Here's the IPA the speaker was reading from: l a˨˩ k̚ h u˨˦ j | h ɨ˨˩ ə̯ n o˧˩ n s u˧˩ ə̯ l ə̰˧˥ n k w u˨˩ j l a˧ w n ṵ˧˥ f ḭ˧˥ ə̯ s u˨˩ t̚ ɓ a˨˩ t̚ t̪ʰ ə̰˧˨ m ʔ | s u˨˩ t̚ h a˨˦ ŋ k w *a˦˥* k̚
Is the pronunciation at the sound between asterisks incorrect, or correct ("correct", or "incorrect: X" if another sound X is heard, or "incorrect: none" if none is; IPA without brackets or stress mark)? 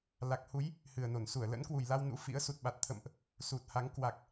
incorrect: a˨˩